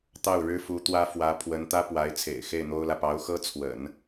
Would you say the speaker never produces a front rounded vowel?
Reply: yes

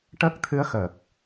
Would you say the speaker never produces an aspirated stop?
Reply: no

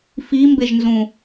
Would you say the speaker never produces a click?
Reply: yes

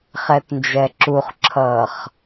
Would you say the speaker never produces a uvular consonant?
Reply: no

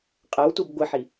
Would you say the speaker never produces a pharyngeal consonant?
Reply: no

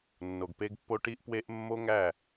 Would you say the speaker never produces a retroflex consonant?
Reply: no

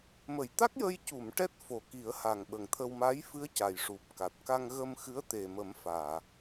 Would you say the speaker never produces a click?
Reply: yes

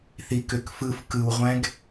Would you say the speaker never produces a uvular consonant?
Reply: no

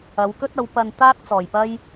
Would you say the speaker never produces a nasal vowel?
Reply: yes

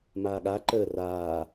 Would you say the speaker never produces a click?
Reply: no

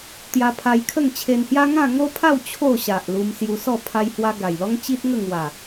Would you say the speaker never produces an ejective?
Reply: yes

